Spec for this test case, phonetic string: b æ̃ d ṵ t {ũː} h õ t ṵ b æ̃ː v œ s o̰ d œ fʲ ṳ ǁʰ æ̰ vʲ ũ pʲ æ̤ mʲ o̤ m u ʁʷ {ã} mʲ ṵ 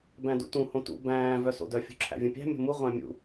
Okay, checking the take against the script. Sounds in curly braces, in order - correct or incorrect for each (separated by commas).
incorrect, incorrect